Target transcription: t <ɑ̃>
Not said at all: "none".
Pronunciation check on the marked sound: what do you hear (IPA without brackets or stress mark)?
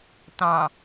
ɑ̃